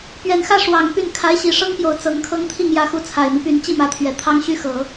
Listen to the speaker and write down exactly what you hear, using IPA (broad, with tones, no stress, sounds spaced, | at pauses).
p ɥ ɛ˨˩ n x ä˥˩ ʂ w ɑ˨˩ ŋ p y˥˩ n kʰ a˧˥ ɪ̯ ɕ i˨˩ ʂ ɤ˥ ŋ p j o˨˩ ʊ̯ t͡s ɤ˧˥ ŋ kʰ ɤ˥ ŋ t̪ʰ i˥˩ ŋ j ä˧˥ x u˧˥ t͡sʰ a˨˩ ɪ̯ m i˦ p y˧˥ n t͡ɕ i˥˩ m ä˧˥ t̪ʰ ɥ ɛ˨˩ t̪ʰ ɑ˥ ŋ ɕ y˥ x ɤ˨˩˦